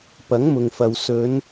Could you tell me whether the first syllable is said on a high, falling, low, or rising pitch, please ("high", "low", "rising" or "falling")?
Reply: rising